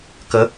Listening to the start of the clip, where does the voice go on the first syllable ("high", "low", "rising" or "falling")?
rising